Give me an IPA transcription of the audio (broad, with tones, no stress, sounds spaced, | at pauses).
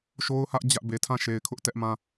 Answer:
ʃ o˦ ʊ̯ h ä˦ ʔ d͡ʑ ä˦ ʔ b e˨ tʰ ã˦˨ ʃ e˨ ɪ̯ kʰ ʊ˦ ʔ t ɛ˦ ʔ m ã˦